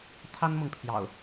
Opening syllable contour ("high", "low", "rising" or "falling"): high